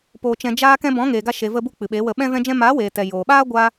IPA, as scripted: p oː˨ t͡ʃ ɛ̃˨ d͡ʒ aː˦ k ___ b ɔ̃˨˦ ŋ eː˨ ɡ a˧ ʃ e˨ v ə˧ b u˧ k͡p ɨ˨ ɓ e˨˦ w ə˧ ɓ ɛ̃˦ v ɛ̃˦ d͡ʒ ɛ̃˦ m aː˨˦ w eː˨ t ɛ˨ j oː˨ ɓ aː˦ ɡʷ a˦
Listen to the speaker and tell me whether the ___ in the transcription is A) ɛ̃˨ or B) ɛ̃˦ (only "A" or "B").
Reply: B